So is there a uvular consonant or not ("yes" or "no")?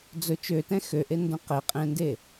yes